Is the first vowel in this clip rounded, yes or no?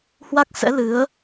no